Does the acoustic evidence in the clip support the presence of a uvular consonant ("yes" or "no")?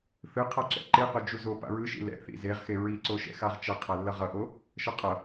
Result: yes